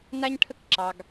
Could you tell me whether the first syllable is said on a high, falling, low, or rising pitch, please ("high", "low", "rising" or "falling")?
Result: high